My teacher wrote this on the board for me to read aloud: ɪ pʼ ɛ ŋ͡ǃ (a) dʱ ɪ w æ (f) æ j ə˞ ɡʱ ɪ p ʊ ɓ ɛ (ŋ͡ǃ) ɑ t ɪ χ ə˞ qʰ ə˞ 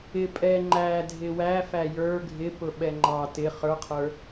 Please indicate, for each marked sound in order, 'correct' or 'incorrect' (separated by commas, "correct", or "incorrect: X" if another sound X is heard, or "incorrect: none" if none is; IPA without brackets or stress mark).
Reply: incorrect: æ, correct, correct